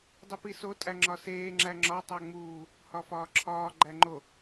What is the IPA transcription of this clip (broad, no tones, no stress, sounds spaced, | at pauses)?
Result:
dˤ i p i s o tʼ æ ŋ͡ǁ ɒ s eː ŋ͡ǁ æ ŋ͡ǁ ɒ tˤ æ ŋ͡m uː | h ɒ f ɒː ǁʰ ɒː ɡ͡ǃ æ ŋ͡ǃ o